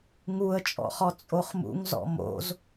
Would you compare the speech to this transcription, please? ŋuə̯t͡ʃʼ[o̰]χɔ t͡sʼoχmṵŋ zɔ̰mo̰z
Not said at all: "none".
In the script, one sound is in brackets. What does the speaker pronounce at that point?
ɔ̰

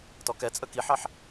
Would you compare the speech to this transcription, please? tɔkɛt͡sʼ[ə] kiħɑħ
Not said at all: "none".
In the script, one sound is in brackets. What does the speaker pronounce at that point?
ə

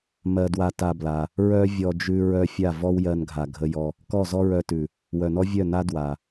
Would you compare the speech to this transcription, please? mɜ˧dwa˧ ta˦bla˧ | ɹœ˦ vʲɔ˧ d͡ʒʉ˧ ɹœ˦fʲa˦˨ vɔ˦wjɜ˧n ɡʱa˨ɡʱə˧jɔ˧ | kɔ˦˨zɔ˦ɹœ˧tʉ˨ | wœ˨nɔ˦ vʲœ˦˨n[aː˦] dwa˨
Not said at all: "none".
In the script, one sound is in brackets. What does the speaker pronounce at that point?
a˦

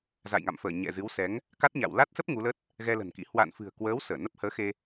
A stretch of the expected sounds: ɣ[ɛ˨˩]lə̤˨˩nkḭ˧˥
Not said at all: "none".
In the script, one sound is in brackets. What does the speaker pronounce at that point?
ɛ˧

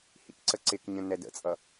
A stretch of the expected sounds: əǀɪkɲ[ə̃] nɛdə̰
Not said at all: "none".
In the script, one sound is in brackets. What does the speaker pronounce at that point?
ə̃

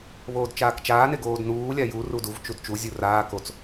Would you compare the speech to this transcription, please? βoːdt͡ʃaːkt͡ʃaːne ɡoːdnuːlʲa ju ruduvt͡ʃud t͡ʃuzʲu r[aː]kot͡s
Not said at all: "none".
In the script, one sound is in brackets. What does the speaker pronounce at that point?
aː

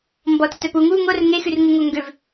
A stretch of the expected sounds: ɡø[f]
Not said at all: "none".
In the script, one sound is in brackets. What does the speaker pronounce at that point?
v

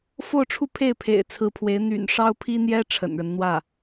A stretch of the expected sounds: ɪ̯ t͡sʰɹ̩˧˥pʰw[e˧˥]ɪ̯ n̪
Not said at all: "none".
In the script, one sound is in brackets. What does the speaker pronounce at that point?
e˧˥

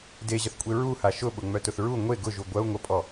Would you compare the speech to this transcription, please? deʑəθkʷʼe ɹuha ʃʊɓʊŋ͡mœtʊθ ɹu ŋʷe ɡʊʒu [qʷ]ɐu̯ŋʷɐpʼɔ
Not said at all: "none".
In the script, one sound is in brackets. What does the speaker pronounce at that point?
ɡʷ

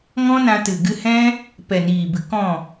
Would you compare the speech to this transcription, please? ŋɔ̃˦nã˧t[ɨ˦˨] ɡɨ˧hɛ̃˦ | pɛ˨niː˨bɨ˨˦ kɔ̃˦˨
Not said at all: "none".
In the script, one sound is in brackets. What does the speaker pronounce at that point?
ɨ˨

